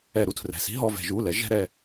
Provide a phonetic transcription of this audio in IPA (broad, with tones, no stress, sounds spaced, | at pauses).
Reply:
ɛ˧˩˧ ɾ u˥˧ tʰ r ɛ̤˩˧˩ s i̤˥ ɦ ɔ˩˧˩ v ɛ̤˧˩˧ ʒ u˩˧˩ l ɛ˨˦ ʒ ɛ̤˥ ɾ ɛ˥˧